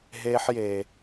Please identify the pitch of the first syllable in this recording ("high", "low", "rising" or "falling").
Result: high